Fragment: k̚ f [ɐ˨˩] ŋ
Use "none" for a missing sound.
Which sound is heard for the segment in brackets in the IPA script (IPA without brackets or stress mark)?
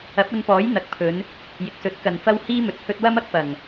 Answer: ɐ˨˩